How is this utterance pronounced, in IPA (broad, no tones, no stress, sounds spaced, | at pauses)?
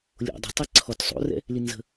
lʲ o̰ dˤ ɛ̤ tˤ ɛ ǀʰ ɔ t sˤ o̰ r ɛ̰ | l i n z ə̤